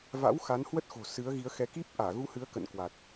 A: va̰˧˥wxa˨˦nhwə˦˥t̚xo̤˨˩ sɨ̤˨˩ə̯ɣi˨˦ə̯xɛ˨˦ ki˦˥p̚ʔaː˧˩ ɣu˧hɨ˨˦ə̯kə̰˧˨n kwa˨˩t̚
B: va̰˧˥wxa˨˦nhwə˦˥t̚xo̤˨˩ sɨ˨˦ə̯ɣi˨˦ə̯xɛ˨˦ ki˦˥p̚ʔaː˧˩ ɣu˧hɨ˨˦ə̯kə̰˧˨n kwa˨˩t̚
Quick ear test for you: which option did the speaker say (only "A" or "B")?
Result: B